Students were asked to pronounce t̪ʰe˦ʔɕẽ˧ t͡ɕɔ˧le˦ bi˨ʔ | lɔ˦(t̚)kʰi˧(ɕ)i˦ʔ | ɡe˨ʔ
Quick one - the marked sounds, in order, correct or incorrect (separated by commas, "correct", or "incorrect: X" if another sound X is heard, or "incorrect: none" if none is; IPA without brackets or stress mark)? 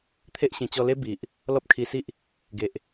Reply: incorrect: p̚, incorrect: s